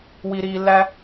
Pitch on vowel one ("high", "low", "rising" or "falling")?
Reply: low